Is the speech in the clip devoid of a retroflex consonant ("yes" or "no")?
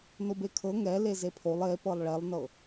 no